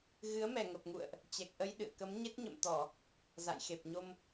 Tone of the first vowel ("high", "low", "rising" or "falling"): rising